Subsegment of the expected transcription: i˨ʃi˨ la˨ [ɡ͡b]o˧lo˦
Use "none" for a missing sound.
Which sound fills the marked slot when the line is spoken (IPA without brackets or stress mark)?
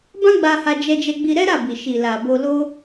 b